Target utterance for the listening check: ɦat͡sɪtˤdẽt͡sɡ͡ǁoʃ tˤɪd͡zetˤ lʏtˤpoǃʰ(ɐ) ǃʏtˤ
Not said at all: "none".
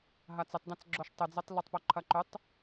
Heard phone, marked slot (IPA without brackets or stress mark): ɐ